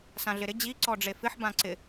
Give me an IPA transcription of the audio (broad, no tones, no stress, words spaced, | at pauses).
sãɮɪɾɪ d͡ʑi ǀɔɖ͡ʐefɪħ bãǀɪ